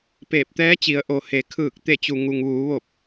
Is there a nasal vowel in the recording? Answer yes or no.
no